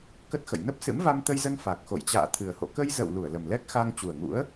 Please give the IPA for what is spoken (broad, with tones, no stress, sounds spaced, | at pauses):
k ə˦˥ t̚ x ə̰˧˨ j n ə˦˥ p̚ s ɨ̰˧˥ m v a˧ m t̪ ə˧ j z ə˧ n f a˨˩ k̚ x o̰˧˨ j t͡ɕ a̰ː˧˨ t̪ʰ ɨ˨˩ ə̯ h o̰˧˨ k ə˧ j z ə̰˧˨ w l u˧˩ ə̯ l ə˨˩ m l ɛ˦˥ k̚ x a˧ ŋ t͡ɕ u˨˩ ə̯ ŋ ṵ˧˥ ə̯